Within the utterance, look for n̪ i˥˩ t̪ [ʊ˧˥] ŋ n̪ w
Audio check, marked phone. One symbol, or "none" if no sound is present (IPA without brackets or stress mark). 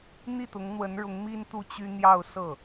ʊ˧˥